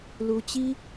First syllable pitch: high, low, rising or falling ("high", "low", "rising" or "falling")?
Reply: high